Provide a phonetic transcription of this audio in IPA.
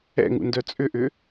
ɛ̰ ŋ ṵ n d œ t͡sʼ ʏ ʔ ʏ

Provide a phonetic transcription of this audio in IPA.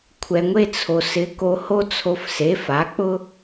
kʷʰ ɛ˩ ŋʷ e˧ t͡sʰ o˩ s ɪ˩˥ k o˧ h o˥ t͡sʰ o˧ f s e˩˥ f a˩˥ k͡p ʊ˥

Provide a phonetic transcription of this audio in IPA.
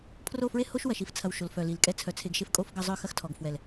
pʰ r o˦˨ f ɹ e˦ h o˦ ʃ w ɐ˨ ʃ i˧ f t͡sʰ ɐ˨ w ʃ o˨ l f œ˨ l i˨ l kʼ ɛ˧ t͡sʰ œ˨˦ t͡sʰ e˨ ɡ ʃ e˧ f kʼ o˧ f ɡ ɐ˧ zˤ œ˦˨ x ɐ˦ x tʰ ɔ˨ ɡ f w ɛ˨ l

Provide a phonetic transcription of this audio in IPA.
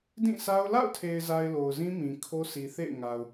d ĩ˦˨ sʰ a˦ ʊ̯ l a̰˦˨ ʊ̯ tʰ e˨ ɪ̯ z a˨ ɪ̯ l o˨ ʊ̯ z ĩ˦ m ĩ˨ kʰ o˦ sʰ i˨ θ ḛ˦˨ ɪ̯ ŋ a˨ ʊ̯

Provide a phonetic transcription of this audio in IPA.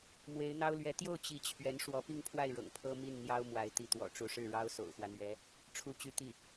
m w e˧˥ ɪ̯ n̪ ɑ˥ ʊ̯ l ɥ ɛ˧˥ t̪ j o˥˩ ʊ̯ t͡ɕ i˧˥ t͡ɕʰ ɥ ɛ˧˥ n ʂ w ɔ˧˥ p i˥˧ ŋ pʰ w a˥˩ ɪ̯ ɻ ɤ̰˨˩ ŋ pʰ ɤ˥ m i˥˩ n n̪ j ɑ˥ ʊ̯ m w a˧˥ ɪ̯ t̪ i˧˥ t̪ w ɔ̰˨˩ ʈ͡ʂ u˧˥ ʂ ɻ̩˥˩ ɻ ɑ˥ ʊ̯ s o̰˨˩ ʊ̯ x w ä˦ n̪ ɥ ɛ˧˥ | ʈ͡ʂʰ u˥ t͡ɕ y˥ t̪ i˥˩

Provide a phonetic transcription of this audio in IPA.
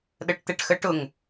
ɗ ə ʈ t̪ ɛ ʈ x ə ʈ ʊ ŋ

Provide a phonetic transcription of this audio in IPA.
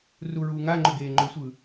r u ɹ uː ŋ a ŋ͡ǃ ʏ ɡ eː ŋ͡ǃ ʏ sʷ ɯ

